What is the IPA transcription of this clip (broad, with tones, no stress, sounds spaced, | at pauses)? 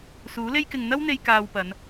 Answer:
s uː˨˥ l e˥ j k ɪ˧ ŋ n̪ ɐ˥ w n̪ e˧ j k aː˧ w p ɐ˨˧ n